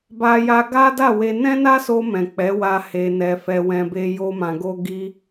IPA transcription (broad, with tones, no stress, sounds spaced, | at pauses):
b a˧ j a˧ ɡ a˦ d a˦˨ w e˧ n ɛ̃˦ n a˦ s o˧ m ɛ̃˨ k͡p ɛ˨˦ w a˧ h e˧ n ɛ˧ f ɛ˧ w ɛ̃˧ b e˧ j o˦ m ã˧ ɡ o˦ ɡ i˦